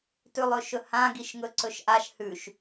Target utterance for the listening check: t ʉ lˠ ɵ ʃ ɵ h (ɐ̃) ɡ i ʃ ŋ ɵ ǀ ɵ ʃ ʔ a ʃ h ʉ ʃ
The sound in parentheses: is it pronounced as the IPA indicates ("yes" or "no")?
no